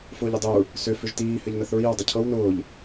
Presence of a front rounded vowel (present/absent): present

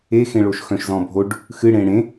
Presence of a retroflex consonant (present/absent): present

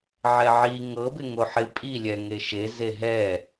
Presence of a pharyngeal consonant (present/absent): present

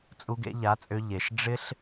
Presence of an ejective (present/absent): present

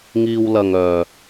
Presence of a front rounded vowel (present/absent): present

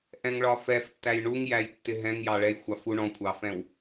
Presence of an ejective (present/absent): absent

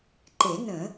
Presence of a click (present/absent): present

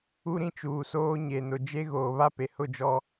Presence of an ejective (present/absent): absent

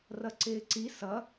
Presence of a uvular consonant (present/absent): absent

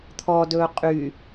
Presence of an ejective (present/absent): present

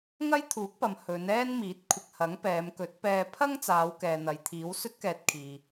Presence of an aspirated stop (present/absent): present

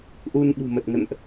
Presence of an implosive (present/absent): present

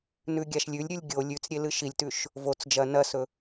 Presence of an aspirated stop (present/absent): absent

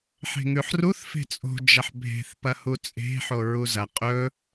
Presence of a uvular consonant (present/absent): present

